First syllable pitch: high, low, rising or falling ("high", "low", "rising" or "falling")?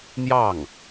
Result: falling